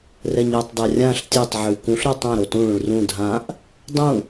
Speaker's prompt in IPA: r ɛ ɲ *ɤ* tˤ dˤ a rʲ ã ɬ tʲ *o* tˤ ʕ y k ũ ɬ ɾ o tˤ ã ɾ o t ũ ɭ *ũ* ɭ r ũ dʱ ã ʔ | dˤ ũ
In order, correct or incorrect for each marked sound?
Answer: correct, correct, correct

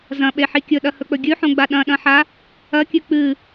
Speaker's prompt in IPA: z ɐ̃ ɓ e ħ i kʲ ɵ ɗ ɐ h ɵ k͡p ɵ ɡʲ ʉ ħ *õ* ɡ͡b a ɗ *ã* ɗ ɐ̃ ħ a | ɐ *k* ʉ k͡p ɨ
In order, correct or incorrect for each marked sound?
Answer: correct, incorrect, incorrect

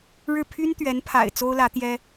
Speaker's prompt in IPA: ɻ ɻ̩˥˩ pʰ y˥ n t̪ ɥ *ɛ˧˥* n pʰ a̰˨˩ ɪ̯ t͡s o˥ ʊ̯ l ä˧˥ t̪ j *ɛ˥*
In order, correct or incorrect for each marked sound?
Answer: correct, correct

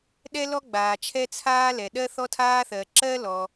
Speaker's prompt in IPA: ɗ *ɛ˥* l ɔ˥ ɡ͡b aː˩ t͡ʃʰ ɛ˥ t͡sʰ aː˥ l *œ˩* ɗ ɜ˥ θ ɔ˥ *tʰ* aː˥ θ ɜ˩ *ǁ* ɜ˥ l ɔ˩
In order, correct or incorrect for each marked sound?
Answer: correct, incorrect, correct, correct

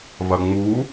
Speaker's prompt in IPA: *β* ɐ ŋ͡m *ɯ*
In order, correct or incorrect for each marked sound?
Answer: correct, incorrect

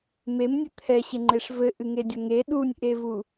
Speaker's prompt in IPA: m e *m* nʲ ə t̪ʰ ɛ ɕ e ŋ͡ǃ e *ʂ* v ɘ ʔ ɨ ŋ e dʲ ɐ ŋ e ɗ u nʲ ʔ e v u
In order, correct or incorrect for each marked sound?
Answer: correct, correct

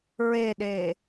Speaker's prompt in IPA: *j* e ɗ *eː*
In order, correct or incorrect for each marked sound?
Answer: incorrect, correct

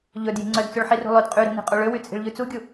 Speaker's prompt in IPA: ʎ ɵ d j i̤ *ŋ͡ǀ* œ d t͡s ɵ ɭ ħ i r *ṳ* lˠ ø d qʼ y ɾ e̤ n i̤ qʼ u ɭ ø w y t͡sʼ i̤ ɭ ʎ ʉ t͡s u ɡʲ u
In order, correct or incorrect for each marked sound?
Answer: correct, correct

